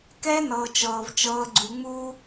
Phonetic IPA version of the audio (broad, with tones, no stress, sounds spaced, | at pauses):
k ɛː˦ n ɤː˨ t͡ʃ ɤː˨ v t͡ʃ ɤː˦ ɡ͡ǀ u˦ ŋ͡m uː˦